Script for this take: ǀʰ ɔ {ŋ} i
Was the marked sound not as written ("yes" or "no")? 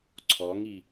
no